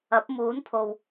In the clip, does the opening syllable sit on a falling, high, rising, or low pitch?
rising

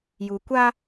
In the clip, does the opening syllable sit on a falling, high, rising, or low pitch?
low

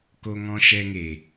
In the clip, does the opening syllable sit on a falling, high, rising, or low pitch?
high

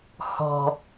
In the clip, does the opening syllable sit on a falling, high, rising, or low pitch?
low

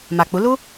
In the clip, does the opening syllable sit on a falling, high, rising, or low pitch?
low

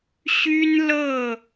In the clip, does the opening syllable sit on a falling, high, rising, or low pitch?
high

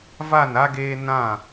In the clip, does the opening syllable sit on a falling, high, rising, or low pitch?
falling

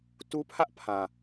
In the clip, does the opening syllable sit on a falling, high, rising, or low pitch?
high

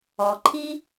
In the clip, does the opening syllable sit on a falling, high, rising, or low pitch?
low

